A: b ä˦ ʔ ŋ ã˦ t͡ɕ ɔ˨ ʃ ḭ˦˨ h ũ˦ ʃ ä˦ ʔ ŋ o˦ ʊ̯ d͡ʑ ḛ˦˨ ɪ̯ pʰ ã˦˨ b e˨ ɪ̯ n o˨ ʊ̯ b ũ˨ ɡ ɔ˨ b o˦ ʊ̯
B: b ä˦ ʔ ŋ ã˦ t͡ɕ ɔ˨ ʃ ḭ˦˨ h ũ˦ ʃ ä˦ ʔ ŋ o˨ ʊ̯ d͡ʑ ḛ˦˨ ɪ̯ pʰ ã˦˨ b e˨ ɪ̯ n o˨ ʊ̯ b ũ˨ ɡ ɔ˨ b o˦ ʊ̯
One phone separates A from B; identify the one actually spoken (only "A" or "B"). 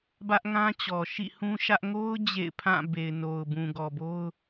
A